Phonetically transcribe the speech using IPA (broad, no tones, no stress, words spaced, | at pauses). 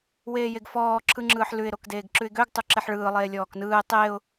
weːjeɡfɔː ǁʰɯŋ͡ǁɯːħlʉɪ̯ ɾokdeːɡǁʉɪ̯ɡøɡ tˤuǁeħɭɯː lˠeːlʲɔːknɯːɪ̯ tˤeːʊ̯